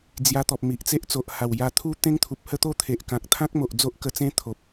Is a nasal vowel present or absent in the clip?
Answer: present